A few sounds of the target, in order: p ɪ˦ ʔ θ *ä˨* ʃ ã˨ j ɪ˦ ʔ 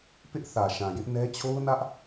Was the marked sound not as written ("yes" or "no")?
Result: no